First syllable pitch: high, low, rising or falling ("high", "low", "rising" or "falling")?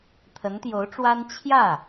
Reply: rising